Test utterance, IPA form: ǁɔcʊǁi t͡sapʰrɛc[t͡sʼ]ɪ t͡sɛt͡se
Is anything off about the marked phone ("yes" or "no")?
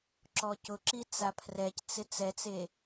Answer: yes